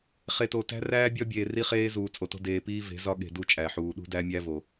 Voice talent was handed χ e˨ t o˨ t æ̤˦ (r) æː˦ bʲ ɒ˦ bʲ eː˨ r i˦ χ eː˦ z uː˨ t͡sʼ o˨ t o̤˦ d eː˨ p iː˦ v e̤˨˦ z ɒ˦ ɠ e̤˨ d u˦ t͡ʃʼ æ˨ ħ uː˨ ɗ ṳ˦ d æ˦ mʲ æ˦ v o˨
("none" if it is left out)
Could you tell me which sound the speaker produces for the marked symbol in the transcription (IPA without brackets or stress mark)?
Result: r